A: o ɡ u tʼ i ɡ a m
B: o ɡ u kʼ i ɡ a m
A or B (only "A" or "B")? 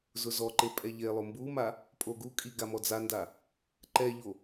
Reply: B